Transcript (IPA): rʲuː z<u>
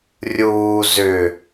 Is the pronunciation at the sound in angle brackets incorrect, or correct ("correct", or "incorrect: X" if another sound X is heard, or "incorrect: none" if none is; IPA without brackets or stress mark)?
incorrect: ʏ